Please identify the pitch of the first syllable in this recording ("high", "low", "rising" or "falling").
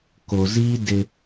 low